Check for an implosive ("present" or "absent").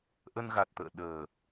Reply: present